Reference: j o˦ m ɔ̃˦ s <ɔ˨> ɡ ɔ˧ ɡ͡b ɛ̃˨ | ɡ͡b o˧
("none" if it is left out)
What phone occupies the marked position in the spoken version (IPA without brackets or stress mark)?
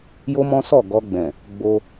ɔ˦˨